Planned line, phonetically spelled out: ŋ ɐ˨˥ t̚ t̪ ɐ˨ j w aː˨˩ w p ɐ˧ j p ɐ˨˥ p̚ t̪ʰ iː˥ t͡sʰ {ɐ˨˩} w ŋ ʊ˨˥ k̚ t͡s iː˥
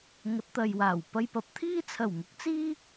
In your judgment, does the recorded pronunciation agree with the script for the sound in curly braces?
yes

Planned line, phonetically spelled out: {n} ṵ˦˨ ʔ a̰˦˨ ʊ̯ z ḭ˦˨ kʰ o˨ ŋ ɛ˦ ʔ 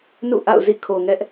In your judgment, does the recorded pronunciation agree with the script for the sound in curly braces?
yes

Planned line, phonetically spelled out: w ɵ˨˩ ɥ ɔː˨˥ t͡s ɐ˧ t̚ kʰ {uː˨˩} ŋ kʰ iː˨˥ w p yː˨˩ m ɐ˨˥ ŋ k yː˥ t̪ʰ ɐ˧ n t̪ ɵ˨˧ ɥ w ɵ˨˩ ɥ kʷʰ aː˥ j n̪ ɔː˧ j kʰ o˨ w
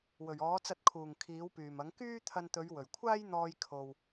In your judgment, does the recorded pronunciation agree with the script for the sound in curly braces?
yes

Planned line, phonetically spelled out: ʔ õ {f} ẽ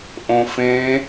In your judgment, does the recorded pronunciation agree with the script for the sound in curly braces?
yes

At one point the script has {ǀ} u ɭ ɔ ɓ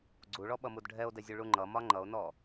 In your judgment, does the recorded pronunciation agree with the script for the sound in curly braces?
no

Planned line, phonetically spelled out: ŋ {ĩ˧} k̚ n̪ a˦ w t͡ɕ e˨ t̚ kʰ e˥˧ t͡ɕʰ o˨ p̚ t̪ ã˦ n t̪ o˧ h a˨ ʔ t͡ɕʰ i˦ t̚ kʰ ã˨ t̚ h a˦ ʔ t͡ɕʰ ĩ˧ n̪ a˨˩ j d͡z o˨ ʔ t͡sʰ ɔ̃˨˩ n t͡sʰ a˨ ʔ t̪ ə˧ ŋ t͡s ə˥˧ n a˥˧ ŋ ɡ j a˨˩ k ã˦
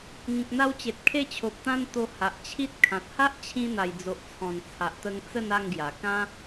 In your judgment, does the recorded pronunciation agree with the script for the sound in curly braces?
no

